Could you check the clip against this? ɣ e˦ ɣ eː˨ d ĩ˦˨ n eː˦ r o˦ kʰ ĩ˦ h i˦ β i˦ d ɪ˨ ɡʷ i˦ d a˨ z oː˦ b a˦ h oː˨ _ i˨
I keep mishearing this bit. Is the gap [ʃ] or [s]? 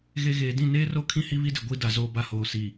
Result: s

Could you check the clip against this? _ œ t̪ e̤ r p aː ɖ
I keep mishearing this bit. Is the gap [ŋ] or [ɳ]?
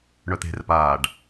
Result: ɳ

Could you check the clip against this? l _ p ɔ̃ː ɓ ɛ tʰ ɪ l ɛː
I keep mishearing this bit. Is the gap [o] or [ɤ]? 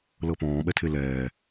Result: ɤ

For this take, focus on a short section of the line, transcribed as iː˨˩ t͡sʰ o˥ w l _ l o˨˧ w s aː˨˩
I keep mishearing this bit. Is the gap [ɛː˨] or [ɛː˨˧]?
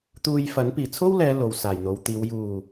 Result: ɛː˨˧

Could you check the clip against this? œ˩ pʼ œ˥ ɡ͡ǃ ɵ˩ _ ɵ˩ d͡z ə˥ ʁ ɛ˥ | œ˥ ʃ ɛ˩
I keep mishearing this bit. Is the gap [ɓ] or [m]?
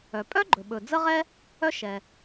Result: ɓ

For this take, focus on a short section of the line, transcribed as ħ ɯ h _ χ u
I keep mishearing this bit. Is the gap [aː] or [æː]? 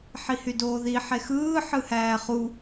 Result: æː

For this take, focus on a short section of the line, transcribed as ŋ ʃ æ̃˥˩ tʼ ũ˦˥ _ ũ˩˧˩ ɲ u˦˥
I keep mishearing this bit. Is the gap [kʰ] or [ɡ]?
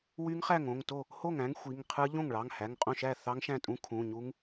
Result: kʰ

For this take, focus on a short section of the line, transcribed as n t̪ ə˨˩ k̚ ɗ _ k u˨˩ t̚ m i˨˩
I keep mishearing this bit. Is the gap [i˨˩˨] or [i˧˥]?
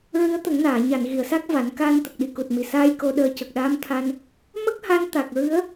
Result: i˨˩˨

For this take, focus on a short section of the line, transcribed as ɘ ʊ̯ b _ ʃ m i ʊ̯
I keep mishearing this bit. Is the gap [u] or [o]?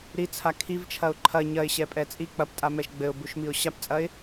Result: u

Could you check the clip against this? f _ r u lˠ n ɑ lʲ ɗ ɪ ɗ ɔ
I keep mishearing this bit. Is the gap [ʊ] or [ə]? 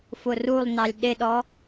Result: ʊ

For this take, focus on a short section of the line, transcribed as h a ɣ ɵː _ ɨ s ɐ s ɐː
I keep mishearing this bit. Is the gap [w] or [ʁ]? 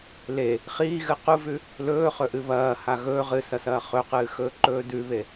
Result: ʁ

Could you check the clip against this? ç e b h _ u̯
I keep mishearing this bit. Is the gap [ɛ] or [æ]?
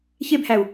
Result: æ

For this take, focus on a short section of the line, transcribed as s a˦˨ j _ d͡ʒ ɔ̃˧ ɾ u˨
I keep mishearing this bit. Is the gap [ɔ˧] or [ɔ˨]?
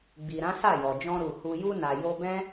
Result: ɔ˨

